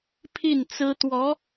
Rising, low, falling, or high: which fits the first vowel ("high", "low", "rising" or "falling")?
falling